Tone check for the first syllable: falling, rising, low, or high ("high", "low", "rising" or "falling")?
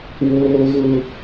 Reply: high